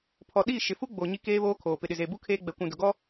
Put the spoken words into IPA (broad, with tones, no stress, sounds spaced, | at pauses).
pʰ ɔ˨ ɗ i˦˨ ʃ ɪ˨ f u˦ ɡ͡b o˨ ɲ i˦ k eː˦ β oː˦ kʰ oː˨ p ɪ˨ ɗ ɪ˨ z eː˨ b u˦ kʰ eː˦ ɡ͡b ɛ˨ kʷ ũ˨ d ʊ˨ ɡ ɔ˦